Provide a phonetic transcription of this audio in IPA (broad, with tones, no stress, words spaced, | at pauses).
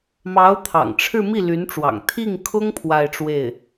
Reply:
mɑ˧˥ʊ̯t̪ʰɑ̰˨˩ŋʈ͡ʂʰɻ̩˥˧ mi˥˩ly˧˥nʈ͡ʂwɑ̰˨˩ŋ t̪ʰi˥˩ŋkʰʊ˥ŋ pʰwa˥˧ɪ̯ʈ͡ʂwe˥˩ɪ̯